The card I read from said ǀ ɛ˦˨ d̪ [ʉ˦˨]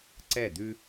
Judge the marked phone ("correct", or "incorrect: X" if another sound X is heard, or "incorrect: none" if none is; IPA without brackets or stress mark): incorrect: ʉ˦